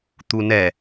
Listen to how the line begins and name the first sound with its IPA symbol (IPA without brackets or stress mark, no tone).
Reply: t̪